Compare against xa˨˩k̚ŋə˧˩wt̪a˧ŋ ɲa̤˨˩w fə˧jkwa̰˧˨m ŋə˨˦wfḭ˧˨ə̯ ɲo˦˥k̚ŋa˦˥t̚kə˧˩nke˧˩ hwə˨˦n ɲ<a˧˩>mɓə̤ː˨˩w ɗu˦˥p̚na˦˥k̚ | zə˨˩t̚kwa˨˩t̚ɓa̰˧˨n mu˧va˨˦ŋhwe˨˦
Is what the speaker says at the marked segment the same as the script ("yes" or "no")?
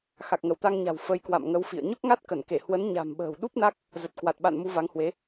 no